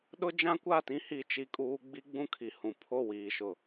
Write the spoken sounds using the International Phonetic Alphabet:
ɗʊ˦d͡ʒã˦kʷa˦˨tĩ˦ hi˦t͡ʃi˦kʼuː˦ ɡ͡bi˦ɡ͡bũ˦kʰi˨hũ˨ pʰo˦˨wiː˨ʃʊ˨

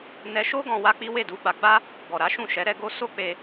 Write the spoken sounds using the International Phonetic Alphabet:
nɛ˧ʃo˦ɡɔ̃˧ wa˦k͡pi˦ we˦˨du˧ɡ͡ba˧ ɡ͡ba˦ | ɡɔ˨ɾa˨˦ ʃũ˦˨ʃɛ˨˦ ɾɛ˧ ɡo˦ so˦k͡pe˧

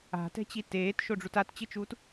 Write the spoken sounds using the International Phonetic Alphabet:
a̤tɛ̤t͡ɕi teːtʃoɖ͡ʐut att͡ɕɨt͡ʃuːt

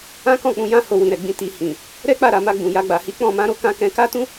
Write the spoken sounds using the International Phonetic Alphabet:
ã˦kɔ̃˦˨k͡pũ˧jã˦ ho˧wĩ˨ɾɛ˨ɡ͡bĩ˧ ti˨ hĩ˨ | ɾɛ˦k͡pa˦˨ɾa˨ma˧ ɡ͡bũ˨ja˧ ɡ͡ba˨hi˨˦ k͡pɔ̃˦˨ mã˧ɾo˦kã˧ kɛ̃˧ka˦tũ˦

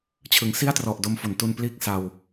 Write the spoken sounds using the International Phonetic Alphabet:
t͡ɕʰɯ˩˦ŋsi˥˩a̯trɔ˨˩ʔ do˧m fo˩˦ntu˧n pliː˥˩k̚sa˧w

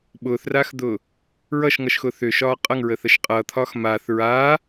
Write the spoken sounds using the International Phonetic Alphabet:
ɓʊːθraːxd̪ʊː | ɹʌʃŋʌʃxʊ θʏʃɒː qʼʌŋɹəːθəʃ qʼʌːt̪ʰɒːx maːθ ɹaː

